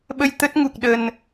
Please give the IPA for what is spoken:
ɓ ə˧ j t̪ ə˦˥ t̚ ŋ u˨˩ k̚ ɗ ə˨˩ n

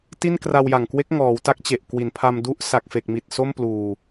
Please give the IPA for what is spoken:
t i˥˩ n k r a˧ w j a˨˩ ŋ k w e˦˥ k̚ ŋ ɔː˩˦ w t a˦˥ k̚ t͡ɕ e˨˩ ʔ k w i˩˦ n pʰ a˧ m d u˦˥ ʔ s a˨˩ k̚ f e˨˩ k̚ m i˨˩ t̚ s o˥˩ m p l uː˧

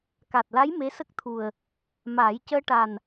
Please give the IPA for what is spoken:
k a˨˩ t̚ l a˧˥ j m e˧˥ s ə˦˥ k̚ t̪ʰ u˨˩ ə̯ | m aː˨˩˦ j c əː˧ ʈ a˨˩ n

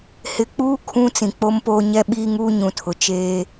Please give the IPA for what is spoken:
h ɪ˨ k͡p uː˦ kʰ ũ˦ t͡s ĩ˨ k͡p o˦ m p oː˦ ɲ ɛ˦ ɓ iː˦ ŋ uː˦ ɲ ũ˨ tʰ ʊ˨ t͡ʃ eː˦

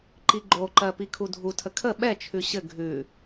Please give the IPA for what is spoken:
ǃ i ɡ͡ǃ o ǃ ɜ p i kʰ u dʱ u tʰ ə kʰ ə ɓ ɛ t͡ʃʰ ʉ ɕ ɘ ɡʱ ʉ

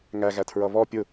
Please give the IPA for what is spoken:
ŋ æ ɣ æ tʰ ɹ ʌ β ɔ pʲ ʊ

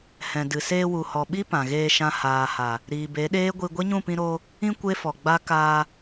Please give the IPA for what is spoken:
h ɛ̃˨ d ɨ˨ s eː˧ w u˨ h ɔ˨ ɓ i˦ p ã˨ ɣ eː˧ ʃ ã˧ h aː˨ h a˨ | ɾ iː˨ b e˨˦ ɗ eː˦ ɡʷ i˧ ɡʷ e˦ ɲ ũ˦˨ p ĩ˧ ɾ oː˧ | ĩ˧ kʷ e˦ f ɔ˨ ɡ͡b a˦ k aː˧

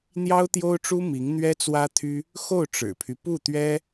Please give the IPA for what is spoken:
n̪ j ɑ˥ ʊ̯ t̪ j o˥ ʊ̯ ʈ͡ʂ u˥ m i˧˥ ŋ n̪ ɥ ɛ˥ t͡s w ä˥ t̪ʰ y˥ | x o˥˩ ʊ̯ ʈ͡ʂ ɻ̩˨˩ pʰ y˦ p u˥˩ t̪ ɥ ɛ˥

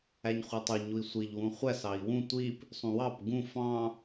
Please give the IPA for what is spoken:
æ ɲ χʷ e tˤ u ɲ u i̯ sʷ i ʎ w ũ χʷ æ s ɑ i̯ w ũ tʷ i p | sˤ ũ w ɑ p ɡ ũ f ɑ̃

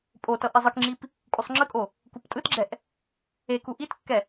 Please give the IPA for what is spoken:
pʼ o t ʌ ʔ ɛ zˤ ɯ k ŋ͡ǁ i p | kʼ u sˤ ŋ͡ǁ ɯ kʼ o | k u p tʼ ɯ t ɡ͡ǁ ɛ ʔ | e k u ʔ i t kː ɛ

